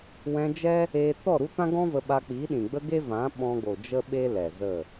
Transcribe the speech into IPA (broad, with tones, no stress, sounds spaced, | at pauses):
w ɛ̃˧ d͡ʒ ɛ˦ | eː˧ t ɔ˦˨ ɾ u˦ t ã˦ ɡ ɔ̃˦ v ə˧ ɓ a˧ k͡p iː˨˦ ɗ ĩ˨ ɡ͡b ə˦ ɡ e˦ v ã˨˦ ɓ ɔ̃˧ ɡ o˨ d͡ʒ ə˦ ɓ e˦ l ɛ˨ z ə˦˨